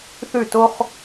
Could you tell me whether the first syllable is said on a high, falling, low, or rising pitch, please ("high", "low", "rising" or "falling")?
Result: falling